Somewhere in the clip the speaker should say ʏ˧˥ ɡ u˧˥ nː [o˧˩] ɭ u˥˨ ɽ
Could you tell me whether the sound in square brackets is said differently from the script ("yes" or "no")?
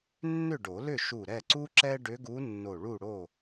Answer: no